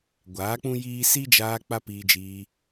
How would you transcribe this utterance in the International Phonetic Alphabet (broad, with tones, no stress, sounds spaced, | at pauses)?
ɡʷ aː˨˦ k͡p ũ˦ j iː˦ s i˦ d͡ʒ aː˧ k͡p a˦ p iː˧ d͡ʒ iː˧